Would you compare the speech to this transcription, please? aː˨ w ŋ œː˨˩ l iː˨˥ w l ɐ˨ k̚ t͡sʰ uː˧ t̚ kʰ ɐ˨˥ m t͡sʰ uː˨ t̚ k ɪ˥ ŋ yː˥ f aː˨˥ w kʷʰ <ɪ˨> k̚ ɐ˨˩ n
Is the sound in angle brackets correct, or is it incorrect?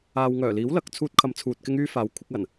incorrect